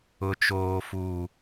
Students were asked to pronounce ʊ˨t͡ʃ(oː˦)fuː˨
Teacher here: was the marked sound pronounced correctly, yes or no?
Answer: no